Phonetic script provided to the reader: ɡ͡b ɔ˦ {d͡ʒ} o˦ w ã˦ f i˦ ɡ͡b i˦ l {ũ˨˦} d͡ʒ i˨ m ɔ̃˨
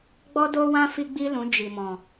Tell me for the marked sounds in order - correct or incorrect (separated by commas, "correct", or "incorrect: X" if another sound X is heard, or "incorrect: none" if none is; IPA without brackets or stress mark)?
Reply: incorrect: d, correct